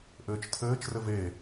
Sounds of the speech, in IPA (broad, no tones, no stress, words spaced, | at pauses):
ʔɘːt͡ʃtʰɘːt͡ʃrɘv e